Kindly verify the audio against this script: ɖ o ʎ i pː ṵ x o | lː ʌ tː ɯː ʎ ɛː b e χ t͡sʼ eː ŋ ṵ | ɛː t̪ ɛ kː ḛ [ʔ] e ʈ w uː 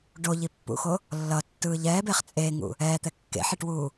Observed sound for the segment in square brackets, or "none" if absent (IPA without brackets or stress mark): ħ